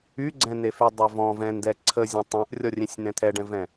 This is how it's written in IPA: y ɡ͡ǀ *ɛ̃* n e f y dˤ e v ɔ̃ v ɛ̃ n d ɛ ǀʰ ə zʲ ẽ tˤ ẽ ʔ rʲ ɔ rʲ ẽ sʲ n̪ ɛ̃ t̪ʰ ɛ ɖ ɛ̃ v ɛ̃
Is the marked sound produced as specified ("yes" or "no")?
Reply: yes